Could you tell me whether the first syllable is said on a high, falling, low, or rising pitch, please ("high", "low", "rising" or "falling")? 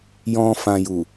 low